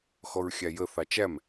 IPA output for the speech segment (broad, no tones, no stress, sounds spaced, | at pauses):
x ɔ ɹ xʲ æ j ə θ ɑ t͡ʃ æ m